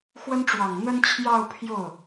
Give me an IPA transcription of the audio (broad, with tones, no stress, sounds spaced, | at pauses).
x w ə˥ n ʈ͡ʂ w ɑ˨˩ ŋ n̪ ə˥ n t͡ɕʰ j ɑ˥˧ ʊ̯ pʰ j o˥˩ ʊ̯